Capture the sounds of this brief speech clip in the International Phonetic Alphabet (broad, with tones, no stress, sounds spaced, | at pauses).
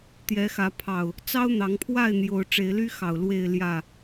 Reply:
t̪ j ɛ˨˦ x ä˨˦ pʰ ɑ˨˩ ʊ̯ | t͡s ɑ˦ ʊ̯ n̪ ɑ˨˦ ŋ pʰ w a˥˨ ɪ̯ n̪ j o˨˦ ʊ̯ ʈ͡ʂ e˨˦ ɪ̯ l y˦ x ɑ˨˩ ʊ̯ l w e˥˨ ɪ̯ l j ä˥˨